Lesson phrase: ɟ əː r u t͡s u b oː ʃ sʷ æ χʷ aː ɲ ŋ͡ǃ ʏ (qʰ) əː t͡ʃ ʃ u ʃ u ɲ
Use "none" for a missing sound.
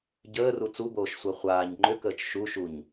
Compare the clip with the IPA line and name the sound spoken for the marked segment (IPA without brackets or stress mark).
k